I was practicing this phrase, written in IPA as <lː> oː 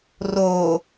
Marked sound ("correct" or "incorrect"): incorrect